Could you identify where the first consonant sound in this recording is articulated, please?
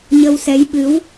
palatal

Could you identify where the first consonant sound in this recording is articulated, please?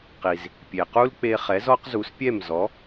uvular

